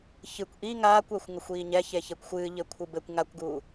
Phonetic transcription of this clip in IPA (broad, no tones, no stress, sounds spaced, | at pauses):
ç ɨ kʷ ʔ i ŋ aː kʷ ɛ xʷ ŋ ɐ xʷ iː ɲ ɛ ç e ç e kʷ xʷ ɨː ʎ ɘ kʷʰ ɨ b ɘ kʷ ŋ a kʷ ɡ uː